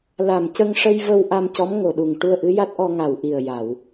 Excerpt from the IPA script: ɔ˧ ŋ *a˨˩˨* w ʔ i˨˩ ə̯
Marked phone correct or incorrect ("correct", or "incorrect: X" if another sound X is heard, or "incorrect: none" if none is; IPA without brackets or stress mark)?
incorrect: a˨˩